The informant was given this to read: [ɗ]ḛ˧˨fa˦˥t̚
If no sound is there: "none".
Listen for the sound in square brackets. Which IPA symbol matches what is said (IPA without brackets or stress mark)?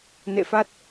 n